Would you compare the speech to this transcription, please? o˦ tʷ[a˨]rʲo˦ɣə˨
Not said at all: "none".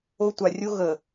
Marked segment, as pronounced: a˨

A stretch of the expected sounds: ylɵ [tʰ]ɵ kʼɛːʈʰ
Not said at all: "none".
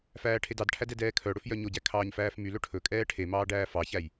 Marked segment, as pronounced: ʈʰ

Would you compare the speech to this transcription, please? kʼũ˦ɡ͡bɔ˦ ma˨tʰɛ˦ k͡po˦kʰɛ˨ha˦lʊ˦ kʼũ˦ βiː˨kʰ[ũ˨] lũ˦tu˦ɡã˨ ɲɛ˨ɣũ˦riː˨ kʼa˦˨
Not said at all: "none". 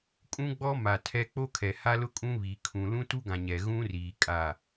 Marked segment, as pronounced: ũ˨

